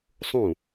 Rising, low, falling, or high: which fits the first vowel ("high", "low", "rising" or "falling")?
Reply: falling